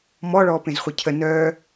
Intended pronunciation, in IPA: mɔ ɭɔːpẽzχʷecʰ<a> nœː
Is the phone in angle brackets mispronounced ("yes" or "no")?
yes